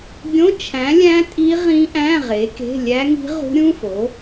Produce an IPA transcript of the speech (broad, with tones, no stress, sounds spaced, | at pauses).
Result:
ɡʲ õ˧˥˧ t͡ʃʰ æ̃˨˥ lʲ æ̃˦˥ tʼ i˦˥ ʁ ĩ˦˥ ʔ æ̃˧˥˧ ʁ e˨˥ k e̤˧˥˧ lʲ æ˦˥ ŋ i̤˦˥ ʁ ṳ˦˥ ɾʲ ũ˧˥˧ f o˨˥